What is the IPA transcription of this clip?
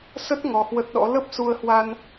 sə˦˥t̚ ŋɔ˧hwə˦˥t̚ɗɔ̰˧˥ lə˦˥p̚ su˧ə̯hwa˧n

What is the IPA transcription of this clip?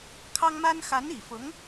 kʰɑ˥ŋma˥n xa˧˥ni˨˩fʊ˧˥ŋ

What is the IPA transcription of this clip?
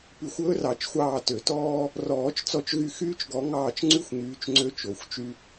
py˨˩˦xʷɵː˥rɑ˨˩˦t͡ʃxʷɑː˦˨ tø˨˩˦tɔː˥ | rɔː˨˩˦t͡ʃt͡sɔ˦˨t͡ʃɣy˦˨xyː˥t͡ʃ ɡɔ˨˦ŋɑː˦˨t͡ʃ ŋ͡ǀy˥xʷŋyː˨˦t͡ʃ ŋ͡ǀø˥ t͡ʃo˨˩˦xʷt͡ʃy˥

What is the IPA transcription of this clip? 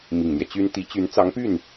mi˨˩ŋn̪jɛ˦t͡ɕy˥n t̪i˧˥t͡ɕy˧˥nt͡sɑ˧˥ŋpy˥˩n

